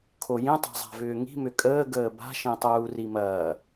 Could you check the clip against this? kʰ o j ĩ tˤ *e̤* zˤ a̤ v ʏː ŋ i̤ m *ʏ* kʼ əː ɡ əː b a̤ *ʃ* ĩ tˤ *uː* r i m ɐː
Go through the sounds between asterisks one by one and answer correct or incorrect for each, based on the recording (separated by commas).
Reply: correct, correct, correct, correct